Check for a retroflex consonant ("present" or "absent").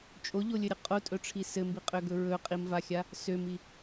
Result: present